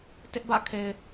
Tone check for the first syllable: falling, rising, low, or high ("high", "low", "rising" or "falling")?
high